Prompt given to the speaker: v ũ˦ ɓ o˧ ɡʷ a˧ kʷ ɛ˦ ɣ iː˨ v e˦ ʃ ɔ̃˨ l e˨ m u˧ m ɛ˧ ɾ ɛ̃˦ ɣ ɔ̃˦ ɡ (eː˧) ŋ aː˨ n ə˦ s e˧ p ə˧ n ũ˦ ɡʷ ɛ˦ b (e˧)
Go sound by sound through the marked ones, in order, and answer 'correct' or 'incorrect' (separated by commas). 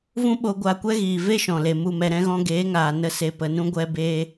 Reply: incorrect, incorrect